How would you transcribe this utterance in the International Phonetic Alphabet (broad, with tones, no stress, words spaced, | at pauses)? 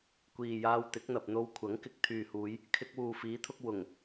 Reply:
kʷiː˨jaː˧w t̪ɪ˨˥k̚n̪ɐ˨p̚n̪o˧w kʷʰɐ˨˥ŋkɪ˨k̚ t̪ʰyː˨huː˨˧j | kʰɪ˧k̚wuː˨ fiː˨˥t̪ʰʊ˧k̚ wʊ˨˩ŋ